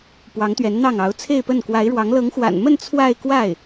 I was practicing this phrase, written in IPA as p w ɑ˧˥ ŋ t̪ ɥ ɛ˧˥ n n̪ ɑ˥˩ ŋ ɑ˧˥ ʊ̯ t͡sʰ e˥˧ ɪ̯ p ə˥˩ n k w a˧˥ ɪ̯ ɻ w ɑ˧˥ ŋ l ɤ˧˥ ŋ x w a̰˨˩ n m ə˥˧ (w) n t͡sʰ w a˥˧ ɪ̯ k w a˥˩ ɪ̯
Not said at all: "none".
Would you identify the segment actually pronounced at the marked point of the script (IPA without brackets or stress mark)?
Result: none